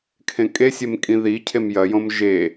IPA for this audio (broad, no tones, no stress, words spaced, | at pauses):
kʰẽkʼesʲem kʼĩðicʰem jɐjõm ʒe